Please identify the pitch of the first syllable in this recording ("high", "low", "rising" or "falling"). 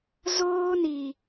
high